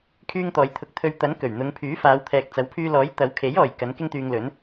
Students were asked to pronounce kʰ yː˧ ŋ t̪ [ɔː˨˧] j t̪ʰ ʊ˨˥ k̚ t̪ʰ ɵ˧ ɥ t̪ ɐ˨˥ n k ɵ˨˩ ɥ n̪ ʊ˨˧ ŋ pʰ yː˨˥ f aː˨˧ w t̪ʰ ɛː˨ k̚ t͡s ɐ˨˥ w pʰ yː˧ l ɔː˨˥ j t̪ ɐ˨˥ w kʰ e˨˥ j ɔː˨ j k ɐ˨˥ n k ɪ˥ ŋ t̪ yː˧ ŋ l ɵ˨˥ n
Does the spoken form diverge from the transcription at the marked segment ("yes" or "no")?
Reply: no